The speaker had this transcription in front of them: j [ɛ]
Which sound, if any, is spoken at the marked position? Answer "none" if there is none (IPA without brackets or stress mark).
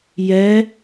ɛ